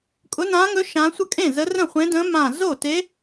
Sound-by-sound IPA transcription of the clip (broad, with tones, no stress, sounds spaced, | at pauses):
kʼ ʊ˧˥ n ãː˧˥ ŋ ɵ˧˥ ʃ ã˧˥ sʷ ə˥˩ kʼ ẽ˥˩ z ə˧˥ r ə̃˥˩ χʷ ẽ˧˥ d ə̃ː˧˥ m ã˧˩ z o˥˩ t e˧˥